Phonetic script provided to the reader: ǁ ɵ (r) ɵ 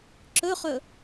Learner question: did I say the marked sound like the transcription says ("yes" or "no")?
no